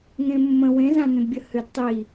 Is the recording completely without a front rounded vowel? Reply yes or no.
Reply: no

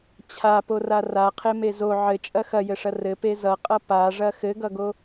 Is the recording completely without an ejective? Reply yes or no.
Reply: no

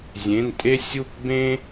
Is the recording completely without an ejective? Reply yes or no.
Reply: no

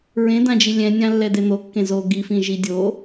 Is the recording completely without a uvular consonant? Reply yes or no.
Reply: yes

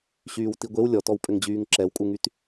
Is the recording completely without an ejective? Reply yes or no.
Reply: no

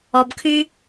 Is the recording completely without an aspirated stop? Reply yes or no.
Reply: no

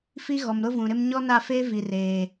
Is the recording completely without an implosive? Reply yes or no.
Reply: yes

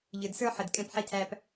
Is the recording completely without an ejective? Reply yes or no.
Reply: no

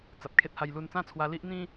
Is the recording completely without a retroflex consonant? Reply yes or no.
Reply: yes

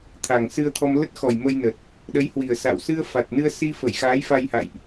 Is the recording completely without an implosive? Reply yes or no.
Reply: no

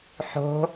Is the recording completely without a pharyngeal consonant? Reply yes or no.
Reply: no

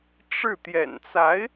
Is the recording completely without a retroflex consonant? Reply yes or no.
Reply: no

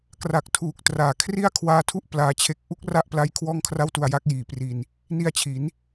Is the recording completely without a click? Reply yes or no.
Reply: yes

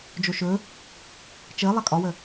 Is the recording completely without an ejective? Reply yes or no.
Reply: no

